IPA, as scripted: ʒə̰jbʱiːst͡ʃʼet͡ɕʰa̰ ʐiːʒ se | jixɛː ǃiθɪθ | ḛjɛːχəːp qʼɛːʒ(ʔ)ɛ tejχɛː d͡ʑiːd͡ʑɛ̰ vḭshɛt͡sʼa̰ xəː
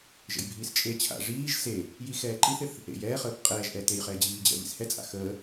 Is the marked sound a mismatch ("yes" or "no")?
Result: no